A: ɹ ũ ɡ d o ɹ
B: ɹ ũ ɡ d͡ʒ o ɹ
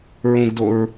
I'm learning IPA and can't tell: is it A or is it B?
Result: A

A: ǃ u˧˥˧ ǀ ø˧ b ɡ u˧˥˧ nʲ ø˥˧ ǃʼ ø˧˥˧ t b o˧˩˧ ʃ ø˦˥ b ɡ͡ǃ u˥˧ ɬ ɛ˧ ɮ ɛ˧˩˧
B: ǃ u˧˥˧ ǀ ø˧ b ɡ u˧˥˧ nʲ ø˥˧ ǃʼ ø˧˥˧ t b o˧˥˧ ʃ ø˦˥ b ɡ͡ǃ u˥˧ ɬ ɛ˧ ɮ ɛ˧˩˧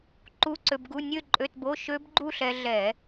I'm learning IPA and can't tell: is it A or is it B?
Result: B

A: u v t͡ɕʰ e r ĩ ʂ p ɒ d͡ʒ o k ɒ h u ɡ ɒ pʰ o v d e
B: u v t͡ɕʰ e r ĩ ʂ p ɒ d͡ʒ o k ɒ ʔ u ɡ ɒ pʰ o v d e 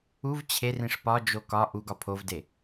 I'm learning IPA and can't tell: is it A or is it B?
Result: B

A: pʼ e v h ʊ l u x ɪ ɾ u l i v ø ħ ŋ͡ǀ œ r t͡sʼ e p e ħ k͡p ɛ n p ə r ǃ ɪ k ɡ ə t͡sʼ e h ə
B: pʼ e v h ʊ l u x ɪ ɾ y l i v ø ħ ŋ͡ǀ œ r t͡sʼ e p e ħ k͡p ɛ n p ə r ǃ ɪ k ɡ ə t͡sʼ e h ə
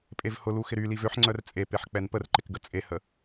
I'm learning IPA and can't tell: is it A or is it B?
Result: B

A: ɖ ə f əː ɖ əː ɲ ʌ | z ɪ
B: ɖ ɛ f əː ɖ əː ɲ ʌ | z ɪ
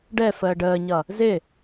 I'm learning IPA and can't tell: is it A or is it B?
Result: B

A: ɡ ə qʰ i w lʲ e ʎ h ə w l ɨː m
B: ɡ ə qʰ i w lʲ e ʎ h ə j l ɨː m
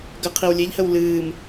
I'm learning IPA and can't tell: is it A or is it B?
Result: A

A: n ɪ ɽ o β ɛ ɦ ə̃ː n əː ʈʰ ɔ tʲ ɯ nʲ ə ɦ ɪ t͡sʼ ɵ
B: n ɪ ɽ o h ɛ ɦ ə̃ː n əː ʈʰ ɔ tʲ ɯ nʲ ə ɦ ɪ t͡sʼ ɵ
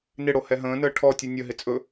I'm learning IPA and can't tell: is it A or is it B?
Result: B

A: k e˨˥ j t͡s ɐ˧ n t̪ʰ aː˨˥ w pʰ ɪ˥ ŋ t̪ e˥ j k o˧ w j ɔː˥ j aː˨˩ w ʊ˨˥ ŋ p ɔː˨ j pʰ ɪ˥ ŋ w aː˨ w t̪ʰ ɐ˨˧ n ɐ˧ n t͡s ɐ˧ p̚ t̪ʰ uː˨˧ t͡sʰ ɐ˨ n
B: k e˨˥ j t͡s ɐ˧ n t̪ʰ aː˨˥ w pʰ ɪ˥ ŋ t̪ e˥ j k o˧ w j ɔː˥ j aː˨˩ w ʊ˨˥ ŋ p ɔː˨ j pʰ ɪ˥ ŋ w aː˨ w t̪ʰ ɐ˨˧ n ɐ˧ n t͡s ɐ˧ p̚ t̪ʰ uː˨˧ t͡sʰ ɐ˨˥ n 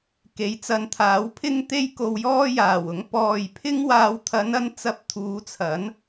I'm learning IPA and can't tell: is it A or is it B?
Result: B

